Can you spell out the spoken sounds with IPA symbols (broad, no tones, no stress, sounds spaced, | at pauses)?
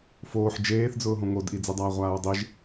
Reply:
f oː ħ d͡ʒ eː θ d͡z ʊː ɦ õ ŋ o d ʔ i d͡z i dˤ aː ʁʷ aː ɹ dˤ i ʒ